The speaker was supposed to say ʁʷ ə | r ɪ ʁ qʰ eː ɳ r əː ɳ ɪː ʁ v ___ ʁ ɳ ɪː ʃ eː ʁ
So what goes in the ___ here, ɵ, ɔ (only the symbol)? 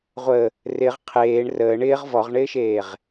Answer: ɔ